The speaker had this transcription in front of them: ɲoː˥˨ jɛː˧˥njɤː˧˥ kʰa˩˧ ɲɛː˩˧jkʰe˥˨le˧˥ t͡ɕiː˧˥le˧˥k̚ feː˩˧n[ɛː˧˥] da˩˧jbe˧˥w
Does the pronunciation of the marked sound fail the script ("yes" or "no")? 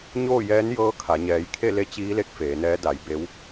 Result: no